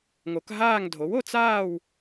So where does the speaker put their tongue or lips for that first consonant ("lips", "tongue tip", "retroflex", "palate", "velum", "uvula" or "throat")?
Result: velum